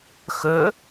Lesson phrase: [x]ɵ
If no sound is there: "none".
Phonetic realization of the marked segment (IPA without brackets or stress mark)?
x